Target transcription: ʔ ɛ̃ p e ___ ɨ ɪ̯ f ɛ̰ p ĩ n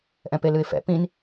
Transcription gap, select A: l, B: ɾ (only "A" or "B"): A